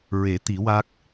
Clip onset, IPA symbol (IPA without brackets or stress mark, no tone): ɹ